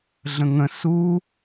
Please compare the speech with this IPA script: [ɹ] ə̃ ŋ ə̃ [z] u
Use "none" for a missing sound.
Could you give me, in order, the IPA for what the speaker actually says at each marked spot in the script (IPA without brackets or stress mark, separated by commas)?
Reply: ɮ, s